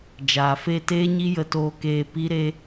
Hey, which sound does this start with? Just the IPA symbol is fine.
d͡ʒ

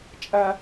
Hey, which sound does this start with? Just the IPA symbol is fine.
t͡ʃʼ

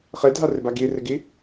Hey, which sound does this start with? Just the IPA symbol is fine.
χ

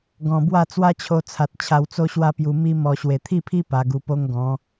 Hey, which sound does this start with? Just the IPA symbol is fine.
ɡ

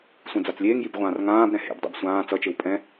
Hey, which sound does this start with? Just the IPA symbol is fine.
sʷ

